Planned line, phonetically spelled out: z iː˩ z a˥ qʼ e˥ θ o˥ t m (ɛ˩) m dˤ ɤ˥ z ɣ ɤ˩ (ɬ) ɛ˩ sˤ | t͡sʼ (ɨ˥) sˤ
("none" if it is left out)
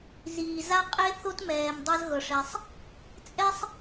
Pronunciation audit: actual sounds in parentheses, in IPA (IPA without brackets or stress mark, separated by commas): ɛː˩, ʂ, ɛ˥